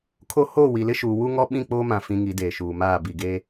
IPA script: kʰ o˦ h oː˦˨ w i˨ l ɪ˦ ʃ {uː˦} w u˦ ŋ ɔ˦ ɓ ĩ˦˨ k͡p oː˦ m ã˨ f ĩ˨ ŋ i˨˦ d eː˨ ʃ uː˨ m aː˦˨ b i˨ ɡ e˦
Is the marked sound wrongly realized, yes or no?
yes